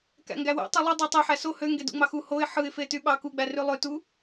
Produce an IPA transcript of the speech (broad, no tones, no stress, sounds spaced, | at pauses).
k æ̰ ŋ ɡ æ w æ̰ tˤ ɯ lˠ ɯ dˤ u tˤ e ħ æ s o h ø ŋ ɡ e d ṵ ŋ͡m ɑ x u h o ɪ̯ ħ ɯ ɪ̯ f e t y ɓ ɑ k u ɡ͡b æ r y lˠ ø t u